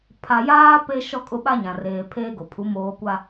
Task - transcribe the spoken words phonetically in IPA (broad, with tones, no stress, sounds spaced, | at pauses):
pʰ a˨ j aː˦ p e˦ ʃ ɔ˦ kʼ ʊ˦ ɓ a˦ ɲ ã˨ r eː˨ pʰ eː˦ ɡ o˨ pʰ u˨˦ m oː˦ kʷ a˦